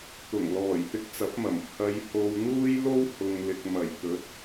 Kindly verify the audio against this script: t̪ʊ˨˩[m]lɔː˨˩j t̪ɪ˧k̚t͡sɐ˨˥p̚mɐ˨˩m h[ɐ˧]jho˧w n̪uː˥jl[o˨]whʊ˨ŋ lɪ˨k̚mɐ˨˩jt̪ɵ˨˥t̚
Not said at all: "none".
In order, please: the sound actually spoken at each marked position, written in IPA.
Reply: ŋ, ɐ˧, o˥

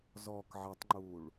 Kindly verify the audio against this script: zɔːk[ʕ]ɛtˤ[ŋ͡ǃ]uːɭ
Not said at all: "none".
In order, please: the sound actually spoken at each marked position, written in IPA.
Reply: ʕ, ŋ͡ǃ

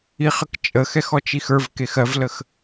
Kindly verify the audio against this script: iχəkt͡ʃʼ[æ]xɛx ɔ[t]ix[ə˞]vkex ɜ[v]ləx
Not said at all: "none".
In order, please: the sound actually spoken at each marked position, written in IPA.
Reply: ə, t͡ʃ, ə˞, v

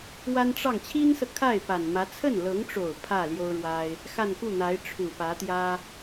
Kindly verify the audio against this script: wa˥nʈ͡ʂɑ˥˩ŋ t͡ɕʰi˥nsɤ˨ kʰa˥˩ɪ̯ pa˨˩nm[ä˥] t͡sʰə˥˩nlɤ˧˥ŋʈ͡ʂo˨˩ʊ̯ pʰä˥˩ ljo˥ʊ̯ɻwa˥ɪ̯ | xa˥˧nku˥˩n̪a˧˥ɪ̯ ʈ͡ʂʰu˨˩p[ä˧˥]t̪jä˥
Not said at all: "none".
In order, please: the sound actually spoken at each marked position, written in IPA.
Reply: ä˧˥, ä˧˥

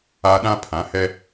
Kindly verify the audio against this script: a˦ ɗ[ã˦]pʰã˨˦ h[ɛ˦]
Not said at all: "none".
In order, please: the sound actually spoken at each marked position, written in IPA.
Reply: ã˦, ɛ˦

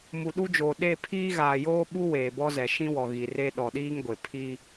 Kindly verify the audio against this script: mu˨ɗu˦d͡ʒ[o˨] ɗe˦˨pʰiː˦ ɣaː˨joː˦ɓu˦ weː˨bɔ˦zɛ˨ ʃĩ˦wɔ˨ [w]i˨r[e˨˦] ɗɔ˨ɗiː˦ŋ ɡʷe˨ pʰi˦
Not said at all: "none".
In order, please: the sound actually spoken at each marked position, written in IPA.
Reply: oː˨, ɣ, e˦

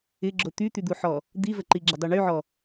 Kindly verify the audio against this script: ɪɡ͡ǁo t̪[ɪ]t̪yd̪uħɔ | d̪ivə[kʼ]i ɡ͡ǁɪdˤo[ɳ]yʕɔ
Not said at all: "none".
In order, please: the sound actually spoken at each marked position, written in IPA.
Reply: y, ǃ, ɳ

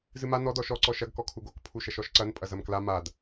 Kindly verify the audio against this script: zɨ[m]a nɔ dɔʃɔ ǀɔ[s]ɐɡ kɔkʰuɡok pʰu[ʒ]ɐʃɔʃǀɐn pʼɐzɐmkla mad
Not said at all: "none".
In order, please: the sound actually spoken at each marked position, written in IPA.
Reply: m, ʃ, ʃ

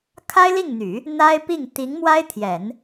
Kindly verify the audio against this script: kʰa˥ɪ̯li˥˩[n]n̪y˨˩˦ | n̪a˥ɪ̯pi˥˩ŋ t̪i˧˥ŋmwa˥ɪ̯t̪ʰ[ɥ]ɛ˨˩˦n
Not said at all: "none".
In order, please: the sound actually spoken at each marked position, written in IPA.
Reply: ŋ, j

